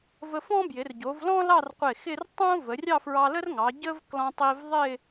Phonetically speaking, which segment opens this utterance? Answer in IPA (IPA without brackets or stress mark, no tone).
v